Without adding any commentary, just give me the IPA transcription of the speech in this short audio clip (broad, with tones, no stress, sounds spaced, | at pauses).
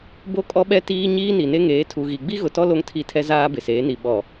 b o˦ kʼ ɔ˦ ɓ ɛ˦ t iː˦ ɲ iː˦ n i˨ n e˦ ŋ eː˨˦ tʰ u˨ ɣ i˨ ɡ͡b i˦ ɣ ʊ˨ t ɔ˦ l o˦ ŋ tʰ i˦˨ tʰ ɛ˦ z aː˦ b ɪ˨ s eː˨˦ n i˨ ɓ ɔ˨